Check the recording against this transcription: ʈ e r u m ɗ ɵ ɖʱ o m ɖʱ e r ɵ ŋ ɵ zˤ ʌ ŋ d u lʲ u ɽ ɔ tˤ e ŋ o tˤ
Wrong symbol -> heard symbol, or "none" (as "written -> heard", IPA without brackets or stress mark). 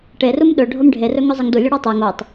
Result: none